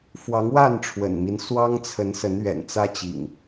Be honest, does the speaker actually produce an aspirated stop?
yes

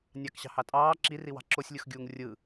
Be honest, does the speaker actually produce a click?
yes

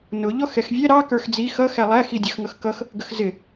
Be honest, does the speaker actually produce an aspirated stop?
no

